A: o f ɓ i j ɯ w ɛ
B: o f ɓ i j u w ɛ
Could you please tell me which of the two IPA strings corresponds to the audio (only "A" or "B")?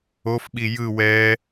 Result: A